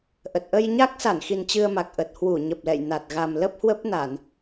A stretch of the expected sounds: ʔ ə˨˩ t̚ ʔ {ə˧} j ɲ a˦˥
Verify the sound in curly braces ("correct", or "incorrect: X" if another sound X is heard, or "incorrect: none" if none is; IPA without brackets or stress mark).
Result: correct